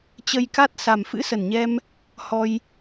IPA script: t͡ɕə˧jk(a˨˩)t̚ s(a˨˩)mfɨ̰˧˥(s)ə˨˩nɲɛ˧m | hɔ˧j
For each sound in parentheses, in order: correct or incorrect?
incorrect, correct, correct

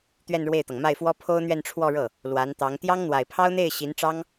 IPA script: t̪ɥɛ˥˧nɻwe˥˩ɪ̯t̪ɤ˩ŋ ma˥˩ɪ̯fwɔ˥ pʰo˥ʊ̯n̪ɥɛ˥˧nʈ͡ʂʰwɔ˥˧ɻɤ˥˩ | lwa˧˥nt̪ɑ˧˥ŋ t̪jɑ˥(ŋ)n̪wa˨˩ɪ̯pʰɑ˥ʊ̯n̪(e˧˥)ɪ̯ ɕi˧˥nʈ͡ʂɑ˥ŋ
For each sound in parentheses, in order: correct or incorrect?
correct, incorrect

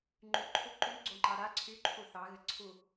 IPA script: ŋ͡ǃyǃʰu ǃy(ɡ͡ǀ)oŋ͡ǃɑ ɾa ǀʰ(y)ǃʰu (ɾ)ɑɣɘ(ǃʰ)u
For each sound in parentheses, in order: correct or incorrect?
correct, correct, incorrect, incorrect

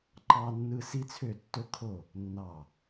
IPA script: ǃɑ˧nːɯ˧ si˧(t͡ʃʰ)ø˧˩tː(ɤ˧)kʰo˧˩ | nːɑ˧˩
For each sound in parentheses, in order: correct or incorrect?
incorrect, incorrect

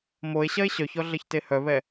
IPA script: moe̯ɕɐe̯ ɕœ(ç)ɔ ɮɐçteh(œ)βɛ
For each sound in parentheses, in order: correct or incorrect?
correct, correct

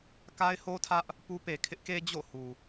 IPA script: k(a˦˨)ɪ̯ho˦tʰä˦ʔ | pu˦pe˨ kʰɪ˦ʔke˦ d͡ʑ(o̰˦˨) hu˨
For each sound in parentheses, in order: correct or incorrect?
incorrect, correct

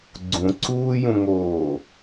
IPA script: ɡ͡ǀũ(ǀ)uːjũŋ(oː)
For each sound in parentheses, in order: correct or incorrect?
correct, correct

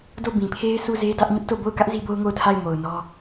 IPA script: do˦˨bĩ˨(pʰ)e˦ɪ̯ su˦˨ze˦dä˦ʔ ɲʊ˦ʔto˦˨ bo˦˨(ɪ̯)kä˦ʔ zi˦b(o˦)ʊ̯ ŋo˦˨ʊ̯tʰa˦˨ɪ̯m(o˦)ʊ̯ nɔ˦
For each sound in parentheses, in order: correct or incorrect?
correct, incorrect, correct, incorrect

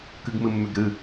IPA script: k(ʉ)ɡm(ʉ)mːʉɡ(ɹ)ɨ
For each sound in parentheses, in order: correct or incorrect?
incorrect, incorrect, incorrect

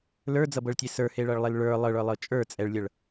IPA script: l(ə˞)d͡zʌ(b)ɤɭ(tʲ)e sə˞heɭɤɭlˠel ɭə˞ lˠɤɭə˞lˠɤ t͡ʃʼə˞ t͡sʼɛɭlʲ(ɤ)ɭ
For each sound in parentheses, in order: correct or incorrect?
correct, correct, correct, correct

